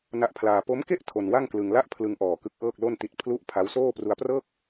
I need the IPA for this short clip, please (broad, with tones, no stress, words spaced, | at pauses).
na˦˥ʔpʰlaː˧ po˦˥mke˥˩ʔ tʰo˧nwa˥˩ŋklɯ˧ŋ la˥˩ʔpʰlɯ˧ŋʔɔː˨˩ kɯ˦˥k̚ʔɤː˥˩k̚lo˥˩nti˦˥t̚ pʰlu˦˥ʔ pʰa˦˥wsoː˥˩ pru˧a̯prɤː˥˩k̚